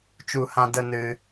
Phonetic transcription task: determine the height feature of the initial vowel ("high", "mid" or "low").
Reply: high